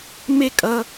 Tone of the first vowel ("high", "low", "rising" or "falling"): falling